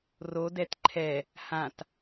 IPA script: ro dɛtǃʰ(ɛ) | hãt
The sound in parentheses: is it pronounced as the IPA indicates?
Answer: yes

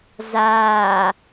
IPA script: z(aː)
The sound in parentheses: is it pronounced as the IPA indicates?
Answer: yes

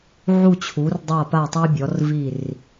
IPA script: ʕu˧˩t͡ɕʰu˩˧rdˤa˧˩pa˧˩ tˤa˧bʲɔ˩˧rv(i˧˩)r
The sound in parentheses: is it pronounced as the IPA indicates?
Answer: yes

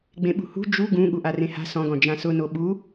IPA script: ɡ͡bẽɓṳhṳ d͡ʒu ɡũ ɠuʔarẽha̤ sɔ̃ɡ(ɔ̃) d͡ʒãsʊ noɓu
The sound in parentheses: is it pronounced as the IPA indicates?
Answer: yes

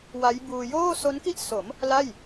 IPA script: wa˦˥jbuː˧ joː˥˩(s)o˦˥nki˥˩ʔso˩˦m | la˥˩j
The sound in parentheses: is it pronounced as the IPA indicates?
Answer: yes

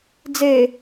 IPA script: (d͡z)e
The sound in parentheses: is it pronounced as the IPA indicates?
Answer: yes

